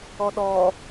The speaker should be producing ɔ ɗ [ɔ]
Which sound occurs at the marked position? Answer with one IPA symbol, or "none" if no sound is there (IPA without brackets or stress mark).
ɔ